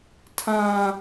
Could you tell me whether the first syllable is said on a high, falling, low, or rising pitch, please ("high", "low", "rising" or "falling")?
high